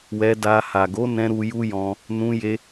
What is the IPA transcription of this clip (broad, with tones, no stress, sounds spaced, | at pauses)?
w ɛ˧ d a˧ h a˨ ɡ o˨˦ n ɛ̃˧ ɾ u˧ j u˦ j ɔ̃˧ | n ũ˧ j e˧